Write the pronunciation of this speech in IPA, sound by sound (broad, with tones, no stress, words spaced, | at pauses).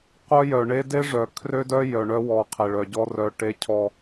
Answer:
qʷœ˦jœ˨ɳe˦ de˦ʐœ˨ kʰrø˦dœ˦ jœ˨ɳœ˦wɔ˨ qʰe˨ɭœ˨ɟɔ˦ rœ˨ ʈe˦cʰɔ˦